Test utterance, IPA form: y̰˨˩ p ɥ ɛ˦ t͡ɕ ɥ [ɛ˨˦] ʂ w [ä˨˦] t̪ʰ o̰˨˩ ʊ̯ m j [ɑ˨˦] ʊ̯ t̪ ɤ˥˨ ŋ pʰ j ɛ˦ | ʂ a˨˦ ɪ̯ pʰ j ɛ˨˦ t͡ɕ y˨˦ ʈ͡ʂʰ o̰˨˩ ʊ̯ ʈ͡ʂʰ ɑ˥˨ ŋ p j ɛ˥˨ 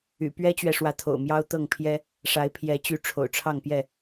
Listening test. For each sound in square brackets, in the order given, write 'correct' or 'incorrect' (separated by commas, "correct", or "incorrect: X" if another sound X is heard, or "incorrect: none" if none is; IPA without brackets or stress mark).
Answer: incorrect: ɛ˨, correct, incorrect: ɑ˦